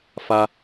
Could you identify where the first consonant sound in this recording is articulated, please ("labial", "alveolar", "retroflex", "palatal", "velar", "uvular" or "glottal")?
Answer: labial